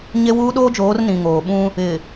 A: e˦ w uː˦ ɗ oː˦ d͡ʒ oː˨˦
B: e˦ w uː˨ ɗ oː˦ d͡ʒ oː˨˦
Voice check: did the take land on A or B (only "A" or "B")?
A